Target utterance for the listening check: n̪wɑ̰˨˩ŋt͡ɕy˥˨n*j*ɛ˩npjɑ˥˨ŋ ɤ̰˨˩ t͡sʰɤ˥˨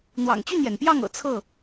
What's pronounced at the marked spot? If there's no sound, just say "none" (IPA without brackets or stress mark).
j